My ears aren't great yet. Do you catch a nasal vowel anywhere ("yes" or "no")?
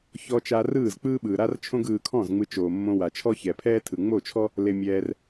yes